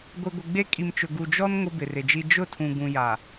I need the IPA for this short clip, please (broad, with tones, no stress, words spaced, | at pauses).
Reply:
ɡʷi˨ɡʷɪ˨ɡ͡be˦ kʼi˨mt͡ʃʊ˨ ɡu˨d͡ʒɔ˦n ŋʊ˦bɪ˨rɪ˨d͡ʒi˦ d͡ʒʊ˦˨tʰũ˨ ɡũ˨ ja˨